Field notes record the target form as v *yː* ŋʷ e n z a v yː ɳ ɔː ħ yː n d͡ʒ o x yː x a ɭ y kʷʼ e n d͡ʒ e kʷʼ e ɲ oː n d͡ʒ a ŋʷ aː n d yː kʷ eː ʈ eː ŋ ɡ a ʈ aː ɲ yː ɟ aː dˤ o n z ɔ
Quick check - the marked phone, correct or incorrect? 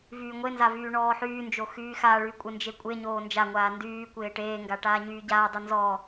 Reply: correct